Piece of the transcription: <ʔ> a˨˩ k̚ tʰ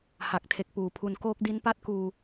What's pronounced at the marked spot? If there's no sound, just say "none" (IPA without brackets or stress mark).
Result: h